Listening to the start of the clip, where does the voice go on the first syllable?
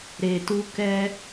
low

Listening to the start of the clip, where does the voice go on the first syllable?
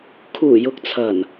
low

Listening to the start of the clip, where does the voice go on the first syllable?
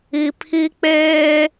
low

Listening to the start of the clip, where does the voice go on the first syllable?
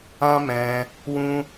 high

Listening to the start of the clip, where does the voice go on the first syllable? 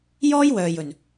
high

